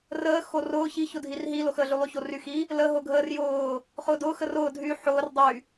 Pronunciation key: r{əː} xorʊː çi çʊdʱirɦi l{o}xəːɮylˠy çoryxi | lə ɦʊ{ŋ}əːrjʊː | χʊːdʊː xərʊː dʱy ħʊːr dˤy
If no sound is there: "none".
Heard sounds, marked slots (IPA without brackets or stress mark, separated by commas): əː, o, ɡʱ